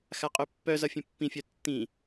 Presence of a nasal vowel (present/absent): present